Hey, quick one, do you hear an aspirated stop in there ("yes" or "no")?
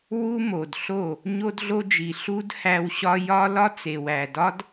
no